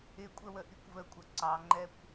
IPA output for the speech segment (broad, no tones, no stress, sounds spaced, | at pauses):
ɪ kʷʼ ə w ə ʔ i kʷ v ə kʷʼ ʌ ǀ ɑ ŋ͡ǃ ɛ kʷ